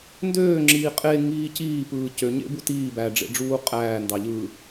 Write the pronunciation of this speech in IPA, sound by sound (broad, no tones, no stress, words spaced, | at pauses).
ndøːŋ͡ǁiː qʼeŋiː ciːpɯː cøɲḛbu tiː bæɖ͡ʐḛɖ͡ʐuː qʼæːndɑ ʎɯ